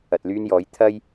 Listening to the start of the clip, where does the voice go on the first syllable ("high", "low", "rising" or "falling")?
low